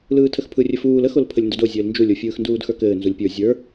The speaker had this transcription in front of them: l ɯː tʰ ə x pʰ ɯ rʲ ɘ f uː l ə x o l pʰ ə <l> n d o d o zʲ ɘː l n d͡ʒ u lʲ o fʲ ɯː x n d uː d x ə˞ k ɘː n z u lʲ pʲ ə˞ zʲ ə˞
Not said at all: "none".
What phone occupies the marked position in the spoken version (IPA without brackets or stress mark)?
lʲ